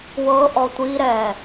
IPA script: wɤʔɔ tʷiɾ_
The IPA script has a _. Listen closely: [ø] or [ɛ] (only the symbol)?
ɛ